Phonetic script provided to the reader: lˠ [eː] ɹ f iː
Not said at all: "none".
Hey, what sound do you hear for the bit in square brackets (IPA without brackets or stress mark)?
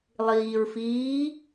iː